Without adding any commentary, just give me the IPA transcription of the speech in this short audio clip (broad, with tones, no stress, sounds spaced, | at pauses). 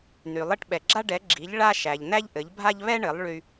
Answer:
n y˩ lˠ ɘ˥˩ ʈ ɓ ɛ˩ ɡ͡ǁ a˥ ɖ ɛ˩˥ ɡ͡ǁ i˩˥ ʎ ɭ a˥ ʃ æ˩ ʎ n̪ æ˥ ʎ ʔ ɘ˩˥ ʎ bʱ a˥ ʎ β ɛ˥ ɳ ɘ˩˥ lˠ ɭ y˧